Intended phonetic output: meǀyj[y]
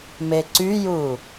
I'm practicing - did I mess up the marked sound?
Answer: yes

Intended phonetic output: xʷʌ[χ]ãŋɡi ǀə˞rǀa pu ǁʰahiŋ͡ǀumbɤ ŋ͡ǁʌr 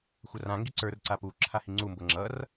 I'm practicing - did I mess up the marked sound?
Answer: yes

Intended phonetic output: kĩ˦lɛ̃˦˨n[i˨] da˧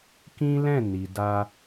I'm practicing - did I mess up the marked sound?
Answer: no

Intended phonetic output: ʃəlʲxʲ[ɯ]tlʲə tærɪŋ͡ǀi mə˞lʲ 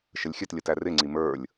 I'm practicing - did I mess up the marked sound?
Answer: yes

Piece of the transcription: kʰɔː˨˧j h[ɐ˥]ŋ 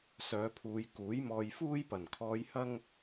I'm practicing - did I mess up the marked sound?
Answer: no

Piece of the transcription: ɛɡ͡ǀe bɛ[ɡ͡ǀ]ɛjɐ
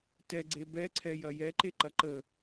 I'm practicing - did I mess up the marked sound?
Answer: yes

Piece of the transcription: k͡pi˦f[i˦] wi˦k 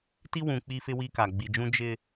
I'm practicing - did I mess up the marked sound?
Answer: yes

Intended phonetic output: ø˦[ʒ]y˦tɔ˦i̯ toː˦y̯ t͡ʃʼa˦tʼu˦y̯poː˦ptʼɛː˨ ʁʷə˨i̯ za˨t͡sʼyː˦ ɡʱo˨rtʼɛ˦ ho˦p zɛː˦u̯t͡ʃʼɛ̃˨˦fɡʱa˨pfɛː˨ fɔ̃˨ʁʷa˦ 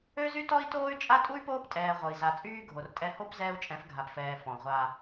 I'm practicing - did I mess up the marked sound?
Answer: yes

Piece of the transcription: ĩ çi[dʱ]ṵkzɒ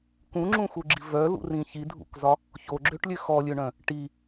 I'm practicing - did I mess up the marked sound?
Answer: no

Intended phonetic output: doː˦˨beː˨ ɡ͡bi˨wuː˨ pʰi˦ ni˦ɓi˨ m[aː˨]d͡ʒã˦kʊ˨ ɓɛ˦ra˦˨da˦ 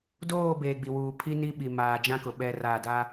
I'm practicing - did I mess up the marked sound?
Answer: no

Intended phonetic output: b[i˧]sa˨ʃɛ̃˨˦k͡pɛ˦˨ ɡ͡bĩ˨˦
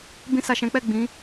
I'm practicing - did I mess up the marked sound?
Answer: yes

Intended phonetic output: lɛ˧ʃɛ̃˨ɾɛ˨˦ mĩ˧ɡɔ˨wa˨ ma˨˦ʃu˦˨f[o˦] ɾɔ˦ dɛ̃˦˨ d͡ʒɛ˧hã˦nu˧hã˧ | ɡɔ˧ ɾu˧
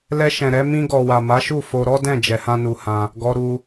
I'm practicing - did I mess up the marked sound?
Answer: yes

